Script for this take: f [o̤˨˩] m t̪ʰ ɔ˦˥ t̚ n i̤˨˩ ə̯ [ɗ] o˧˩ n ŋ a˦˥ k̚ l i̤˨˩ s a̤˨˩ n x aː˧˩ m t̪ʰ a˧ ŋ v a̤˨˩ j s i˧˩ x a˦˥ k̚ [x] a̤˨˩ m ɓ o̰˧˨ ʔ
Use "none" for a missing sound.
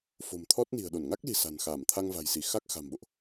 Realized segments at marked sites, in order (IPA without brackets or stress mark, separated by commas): o̤˨˩, ɗ, x